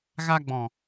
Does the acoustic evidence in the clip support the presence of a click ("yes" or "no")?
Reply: no